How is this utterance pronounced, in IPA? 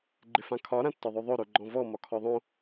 ɡ͡ǃɪfãkʰɒ ɾãtːɒðˤoðˤo ɾoɡ͡ǃɔ̃vɔ mɒkʰɔðˤõ

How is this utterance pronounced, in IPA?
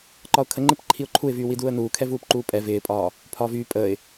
ǃɒʊ̯kʰəŋ͡ǃɪp ǃʰiʊ̯ǃʰuɪ̯vyː widuːə̯nuːkʰɛ vuːpǃuːpʼɛ vɪːpʼɒː | pʰɒːvyː pʼəːɪ̯

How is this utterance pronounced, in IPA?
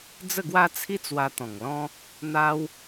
d͡zə˥˧ɡwa˦t͡sʰi˦ t͡swa˧t̪ɔ̃˨˩ŋlɔ̃˦ | n̪a˦w

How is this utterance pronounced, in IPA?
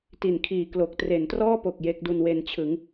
ti˨˩nkʰiː˨˩ klo˨˩k̚tre˩˦ntrɔː˥˩po˨˩k̚ je˦˥k̚du˧nwe˧nt͡ɕʰɯ˩˦ŋ

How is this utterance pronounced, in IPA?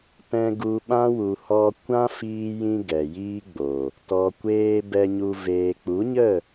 pɛ̃˧ɡu˧ɓã˦ wu˨hɔ˧ kʷã˦fiː˧jĩ˧ ɡɛ˨jiː˦ɡ͡bo˨ | tɔ˨kʷeː˧ bɛ˧ɲu˧ veː˨k͡pu˨˦ɲə˦˨

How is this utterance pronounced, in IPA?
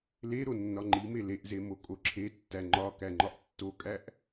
le ɾonːɒŋ͡ǃime leʔze mokʼoǁʰetːæ ŋ͡ǃɒ kæŋ͡ǃɒʔtːokʼæʔ

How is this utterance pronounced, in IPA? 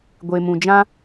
ɡʷe˨mũ˨d͡ʒã˦

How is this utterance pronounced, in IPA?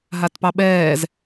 ɦatpɑɓɛːz

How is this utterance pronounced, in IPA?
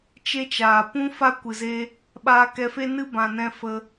t͡ʃe˦t͡ʃaː˨ pũ˦fa˦kʷɨ˨ ze˦ | ɓaː˧kɛ˧fe˦ nɨ˦ bã˧nɛ̃˦ fə˧

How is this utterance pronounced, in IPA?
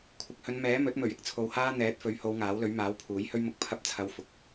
kʷʰɪ˨k̚hɵ˨˧n mɛː˨˥mɵ˨˥t̚mɵ˨˩ɥ ɪ˨˥k̚t͡sʰo˨whaː˥ n̪ɛː˨˥t̚fɵ˨˥ɥho˨˧w ŋaː˨˥wlɵ˨˥ɥmaː˨˥wpʰuː˨˥j hɵ˥ɥmʊ˧k̚ pʰɐ˧p̚t͡sʰɐ˨˧w fʊ˨˥k̚

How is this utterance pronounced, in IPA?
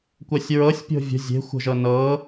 kʷɜsʲɹɤsʲpʲo̤ vʲə̤ zʲe̤xʷə̤ʒɤ nɤ

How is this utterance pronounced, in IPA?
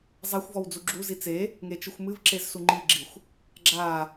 zˤaxʷvɔw d͡zuɡ͡ǁuzi t͡se | ŋet͡ʃɨxʷmɨvǁez suŋ͡ǃiɡ͡ǁixʷ | ɡ͡ǁa

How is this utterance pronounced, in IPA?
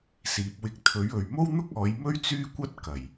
siː˨p̚wɪ˧k̚ t̪ʰɵ˨˥ɥɵ˨ɥ mo˥wn̪ʊ˥k̚ ɔː˨˧jmɵ˥ɥ t͡syː˥kʷɐ˥t̚ kɐ˨˩j

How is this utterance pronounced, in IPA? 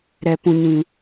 ɾɛ˨pũ˨ɲĩ˨

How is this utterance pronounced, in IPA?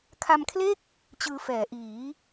kʰa˧mkʰle˥˩k̚ | t͡ɕɯː˧fɛː˩˦ʔiː˩˦

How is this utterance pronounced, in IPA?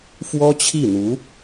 fwɔ˥t͡ɕʰi˥˩n̪u˧˥

